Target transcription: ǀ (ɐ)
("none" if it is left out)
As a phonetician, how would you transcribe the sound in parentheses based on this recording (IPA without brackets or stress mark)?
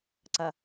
ɐ